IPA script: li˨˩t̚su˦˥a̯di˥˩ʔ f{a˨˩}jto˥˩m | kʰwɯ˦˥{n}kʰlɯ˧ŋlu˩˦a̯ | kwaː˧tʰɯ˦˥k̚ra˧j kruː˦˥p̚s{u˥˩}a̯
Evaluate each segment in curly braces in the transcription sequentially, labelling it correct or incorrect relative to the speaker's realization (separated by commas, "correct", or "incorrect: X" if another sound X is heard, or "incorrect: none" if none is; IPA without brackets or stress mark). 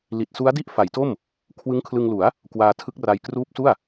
incorrect: a˩˦, incorrect: ŋ, correct